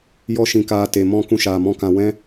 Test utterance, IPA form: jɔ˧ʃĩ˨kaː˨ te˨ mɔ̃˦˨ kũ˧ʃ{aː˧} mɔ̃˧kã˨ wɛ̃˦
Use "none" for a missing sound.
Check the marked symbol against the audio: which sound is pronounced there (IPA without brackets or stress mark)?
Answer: aː˨